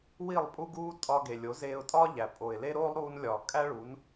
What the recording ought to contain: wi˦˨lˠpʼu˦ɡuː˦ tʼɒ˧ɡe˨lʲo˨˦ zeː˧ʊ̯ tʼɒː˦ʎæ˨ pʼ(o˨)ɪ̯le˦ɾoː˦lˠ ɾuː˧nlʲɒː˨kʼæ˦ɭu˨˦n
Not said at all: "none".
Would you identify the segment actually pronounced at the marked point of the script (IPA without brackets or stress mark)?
o˨